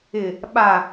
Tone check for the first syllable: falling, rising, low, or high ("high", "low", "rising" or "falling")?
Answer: low